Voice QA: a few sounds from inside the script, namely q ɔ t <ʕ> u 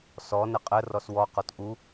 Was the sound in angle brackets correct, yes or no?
no